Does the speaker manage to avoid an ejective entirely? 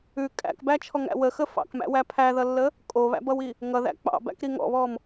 no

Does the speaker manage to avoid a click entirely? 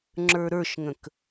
no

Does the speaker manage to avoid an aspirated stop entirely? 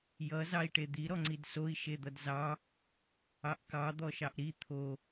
no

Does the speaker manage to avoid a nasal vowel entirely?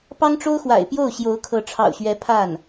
yes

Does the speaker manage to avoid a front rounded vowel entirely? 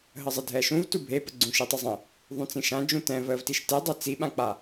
yes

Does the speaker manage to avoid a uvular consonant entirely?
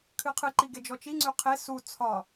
no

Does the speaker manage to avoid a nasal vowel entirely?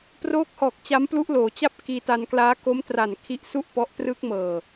yes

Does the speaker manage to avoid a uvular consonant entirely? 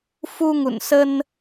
yes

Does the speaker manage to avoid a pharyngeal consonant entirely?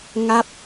yes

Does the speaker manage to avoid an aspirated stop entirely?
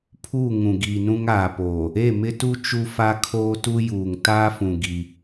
no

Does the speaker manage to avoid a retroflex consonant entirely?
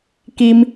yes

